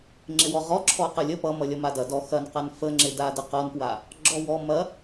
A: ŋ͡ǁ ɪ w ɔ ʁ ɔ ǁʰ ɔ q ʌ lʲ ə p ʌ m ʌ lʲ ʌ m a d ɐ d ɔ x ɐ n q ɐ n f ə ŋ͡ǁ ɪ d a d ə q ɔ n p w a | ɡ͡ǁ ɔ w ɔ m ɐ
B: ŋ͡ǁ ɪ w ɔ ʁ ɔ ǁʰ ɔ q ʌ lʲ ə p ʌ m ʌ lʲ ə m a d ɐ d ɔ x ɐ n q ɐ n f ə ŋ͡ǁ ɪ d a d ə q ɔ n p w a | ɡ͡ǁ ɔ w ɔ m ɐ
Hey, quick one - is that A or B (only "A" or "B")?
A